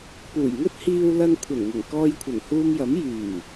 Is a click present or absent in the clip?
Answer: absent